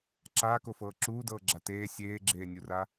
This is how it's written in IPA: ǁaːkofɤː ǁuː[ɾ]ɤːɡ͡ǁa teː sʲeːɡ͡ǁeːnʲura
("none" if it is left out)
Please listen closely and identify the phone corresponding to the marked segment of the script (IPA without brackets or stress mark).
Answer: d